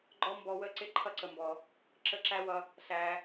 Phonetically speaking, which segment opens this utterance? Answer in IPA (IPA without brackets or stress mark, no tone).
ɡ͡ǃ